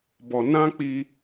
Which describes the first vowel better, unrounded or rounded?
rounded